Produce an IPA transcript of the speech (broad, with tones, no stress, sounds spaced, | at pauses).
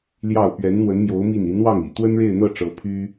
l j ɑ˥˩ ʊ̯ p ɥ ɛ˧˥ n n̪ w ə˧˥ n m j o˧˥ ʊ̯ m i˥˩ n i˧˥ n w ɑ˥˩ ŋ ḭ˨˩ t̪ w ə˥ n ɻ e˥˧ ɪ̯ n̪ ɤ˥˩ ʈ͡ʂ ɤ˧˥ pʰ y˥